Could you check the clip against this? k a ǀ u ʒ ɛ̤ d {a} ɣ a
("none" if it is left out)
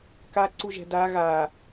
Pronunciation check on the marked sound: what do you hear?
a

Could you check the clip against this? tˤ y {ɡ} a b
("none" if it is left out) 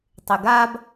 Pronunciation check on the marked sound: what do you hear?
ɡ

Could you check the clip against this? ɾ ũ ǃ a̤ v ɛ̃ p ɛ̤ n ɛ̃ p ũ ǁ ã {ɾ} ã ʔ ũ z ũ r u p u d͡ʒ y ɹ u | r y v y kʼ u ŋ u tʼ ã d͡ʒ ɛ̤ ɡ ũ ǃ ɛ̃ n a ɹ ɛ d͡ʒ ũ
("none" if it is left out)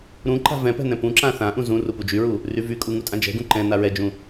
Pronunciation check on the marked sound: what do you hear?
θ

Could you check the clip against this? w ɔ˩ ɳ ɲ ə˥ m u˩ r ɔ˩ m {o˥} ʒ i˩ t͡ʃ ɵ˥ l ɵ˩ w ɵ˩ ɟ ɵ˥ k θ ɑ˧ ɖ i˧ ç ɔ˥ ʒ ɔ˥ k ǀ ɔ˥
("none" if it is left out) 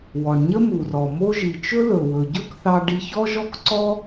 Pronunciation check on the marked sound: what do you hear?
o˥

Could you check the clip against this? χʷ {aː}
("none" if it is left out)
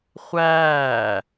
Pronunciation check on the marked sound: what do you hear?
æː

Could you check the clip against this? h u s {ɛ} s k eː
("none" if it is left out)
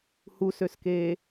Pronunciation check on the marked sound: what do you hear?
ø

